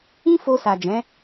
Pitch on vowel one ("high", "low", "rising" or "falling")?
high